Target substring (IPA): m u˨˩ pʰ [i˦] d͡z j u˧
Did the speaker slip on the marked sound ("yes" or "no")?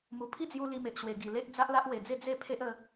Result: no